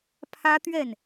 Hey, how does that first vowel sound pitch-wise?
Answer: high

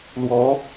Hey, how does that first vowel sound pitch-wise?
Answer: rising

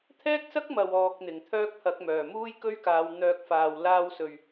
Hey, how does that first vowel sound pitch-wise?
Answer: high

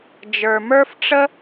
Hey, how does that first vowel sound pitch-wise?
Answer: low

